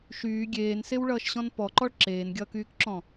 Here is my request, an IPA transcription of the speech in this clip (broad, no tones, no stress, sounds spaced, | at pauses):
ʃ yː ɡʲ eː n s e w ɭ ʌː ʃ ɕ ɔ̃ n p ɔ ǃ ɔ ɭ ǁ eː n ɡʲ ʌː k yː k ǁ ɔ̃